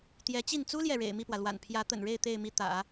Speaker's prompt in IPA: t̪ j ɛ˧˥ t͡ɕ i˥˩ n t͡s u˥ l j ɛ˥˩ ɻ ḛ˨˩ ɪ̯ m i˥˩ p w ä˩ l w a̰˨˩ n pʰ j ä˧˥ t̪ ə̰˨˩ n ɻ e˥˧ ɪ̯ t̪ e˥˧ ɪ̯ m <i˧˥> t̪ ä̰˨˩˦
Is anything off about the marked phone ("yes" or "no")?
yes